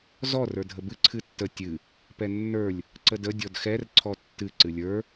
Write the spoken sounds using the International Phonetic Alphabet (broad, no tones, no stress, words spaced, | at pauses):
zɔ rə˞dʱəbɨ ǀʰɨtːə tʲɨ | pɛnːə˞lʲ | ǀədə dʲɔdxɛr ǀʰɔtːɨ ǀɨlʲə˞